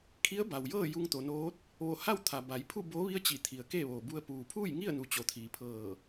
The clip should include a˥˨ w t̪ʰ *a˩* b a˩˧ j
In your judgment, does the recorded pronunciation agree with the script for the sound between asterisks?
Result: yes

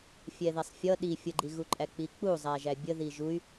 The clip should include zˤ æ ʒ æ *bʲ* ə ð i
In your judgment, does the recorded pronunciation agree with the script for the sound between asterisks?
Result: yes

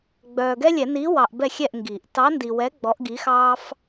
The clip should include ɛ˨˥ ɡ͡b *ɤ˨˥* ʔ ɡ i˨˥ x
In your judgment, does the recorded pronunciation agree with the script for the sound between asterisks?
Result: no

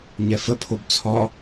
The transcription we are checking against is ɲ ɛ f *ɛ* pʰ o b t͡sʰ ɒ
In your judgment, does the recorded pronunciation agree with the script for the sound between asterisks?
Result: no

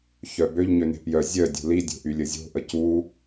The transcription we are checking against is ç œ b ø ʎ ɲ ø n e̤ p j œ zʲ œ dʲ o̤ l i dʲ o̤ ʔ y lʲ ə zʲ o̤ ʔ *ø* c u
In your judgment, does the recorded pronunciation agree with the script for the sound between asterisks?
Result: no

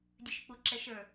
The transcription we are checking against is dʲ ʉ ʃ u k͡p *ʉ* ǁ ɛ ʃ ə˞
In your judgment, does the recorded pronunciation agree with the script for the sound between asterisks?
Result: no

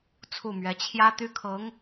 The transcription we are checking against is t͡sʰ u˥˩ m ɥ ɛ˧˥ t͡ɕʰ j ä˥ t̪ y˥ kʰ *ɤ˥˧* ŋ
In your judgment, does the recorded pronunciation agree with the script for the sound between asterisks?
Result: no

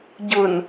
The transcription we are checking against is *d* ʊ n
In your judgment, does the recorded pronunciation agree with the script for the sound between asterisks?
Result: no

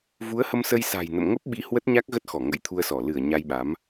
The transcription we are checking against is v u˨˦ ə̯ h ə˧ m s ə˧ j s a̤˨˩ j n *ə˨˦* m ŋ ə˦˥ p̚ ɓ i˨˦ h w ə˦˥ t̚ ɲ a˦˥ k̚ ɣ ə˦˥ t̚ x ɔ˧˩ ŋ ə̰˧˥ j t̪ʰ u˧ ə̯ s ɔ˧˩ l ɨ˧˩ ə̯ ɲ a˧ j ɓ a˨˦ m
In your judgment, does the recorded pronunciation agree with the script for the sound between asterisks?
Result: no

